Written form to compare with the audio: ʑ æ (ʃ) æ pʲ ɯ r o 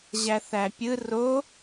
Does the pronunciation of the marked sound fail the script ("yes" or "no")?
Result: yes